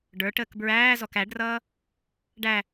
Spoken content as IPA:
ɖ ə˞ ʈ əː k b ɹ æː z ɔ k æ ɖ r ʌː | ɖ æ

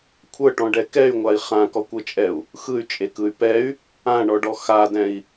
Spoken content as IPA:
kʷʰ ɤ ʈ ɔ̃ ɖ ɛ k ɛ y̯ ŋʷ a i̯ χ ã k ɔ kʷ ɤ t͡ʃʼ ɛ u̯ | x ɯ y̯ t͡ʃʼ e k ɯ y̯ p ɛ y̯ | ã ɳ ɔ ɖ ɔ x a d ɛ̃ i̯

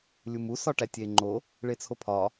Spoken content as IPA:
lʲ u m u s ɒ ʈ æ tʲ e ŋ͡ǃ o | ɭ e t͡sʰ o pʰ ɒ

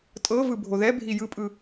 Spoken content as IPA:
tʼ ɤ v ɯ bʱ o ð ɛ bʱ i j ɯ pʼ ɯ

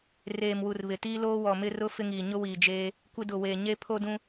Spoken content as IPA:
r eː˨ m w u˨ r β ɪ˨ t iː˦ l oː˦ w ɔ˨ m ɪ˦ r ʊ˦ f ɪ˦ ŋ iː˨ ɲ ʊ˦ w iː˨ d͡ʒ eː˦ | kʷ ɪ˦ d ʊ˨ w eː˨ ɲ e˦ pʰ o˦ d ũ˦

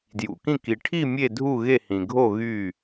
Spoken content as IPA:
d j ṵ˨ k ĩ˥˨ k i˨ ʈʰ i˥˨ mʲ e˥˨ dʱ u˥˨ ɣ e˥˨ h ĩ˨ ɡʱ o˥˨ ɣ y˥˨

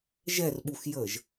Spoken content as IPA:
ʒ ɛ r ɓ u x j əː ʒ

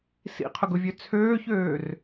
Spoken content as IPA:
s ḭ qʰ ʊ ɡ ʊ vʲ ø t͡sʰ øː ç øː r

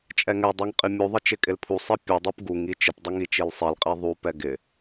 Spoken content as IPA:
t͡ʃʼ ɛ ŋ ɛ dˤ i ŋ qʼ i mʲ u ðˤ ɪ t͡ʃ ɪ kʼ ɪ l pʰ u sˤ i pʲ u dˤ u p ɡ u ŋ i t͡ʃ ɪ p dˤ ɪ ŋ i t͡ʃ i l sˤ i l qʼ i ðˤ u p ɛ ɡ ɪ

